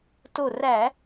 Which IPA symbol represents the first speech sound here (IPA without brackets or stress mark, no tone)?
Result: t